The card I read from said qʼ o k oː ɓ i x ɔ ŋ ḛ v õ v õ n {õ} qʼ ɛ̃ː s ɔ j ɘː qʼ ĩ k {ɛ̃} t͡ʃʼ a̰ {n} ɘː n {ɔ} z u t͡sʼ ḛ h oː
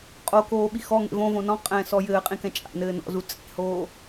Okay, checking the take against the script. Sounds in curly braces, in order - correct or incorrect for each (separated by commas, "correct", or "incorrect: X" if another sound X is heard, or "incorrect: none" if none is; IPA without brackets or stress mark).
incorrect: ɔ̃, correct, correct, incorrect: ɔ̰